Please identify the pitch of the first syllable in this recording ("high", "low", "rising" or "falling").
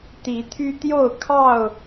rising